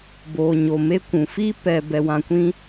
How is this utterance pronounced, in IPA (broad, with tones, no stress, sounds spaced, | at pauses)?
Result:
b oː˨ ɲ o˨ m e˦ kʷ ũ˨ f i˦ p ɛ˧ b ɛ˧ w ã˧ kʷ ĩ˦